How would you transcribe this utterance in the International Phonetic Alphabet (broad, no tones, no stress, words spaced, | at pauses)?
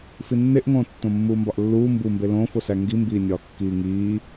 finːeʔŋõː tːõmːuːmbɒʔlːuː mbumbe lõːfosæ ŋɡimbiːnʲɒː kːiːŋiː